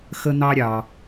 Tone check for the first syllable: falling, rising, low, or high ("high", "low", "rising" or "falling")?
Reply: high